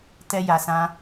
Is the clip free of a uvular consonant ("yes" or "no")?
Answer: yes